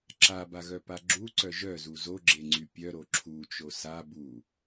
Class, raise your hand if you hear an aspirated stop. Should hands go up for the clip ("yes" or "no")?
yes